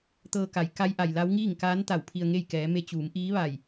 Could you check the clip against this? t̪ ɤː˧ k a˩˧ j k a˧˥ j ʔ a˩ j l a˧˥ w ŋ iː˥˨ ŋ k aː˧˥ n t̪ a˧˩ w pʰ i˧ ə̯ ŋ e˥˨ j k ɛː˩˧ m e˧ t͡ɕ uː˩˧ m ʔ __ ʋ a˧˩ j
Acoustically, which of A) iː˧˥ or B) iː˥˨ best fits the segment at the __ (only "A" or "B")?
A